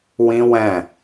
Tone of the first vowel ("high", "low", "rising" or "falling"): high